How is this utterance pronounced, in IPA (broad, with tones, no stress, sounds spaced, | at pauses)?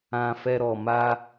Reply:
ã˧ f ɛ˧ ɾ ɔ˨ m a˧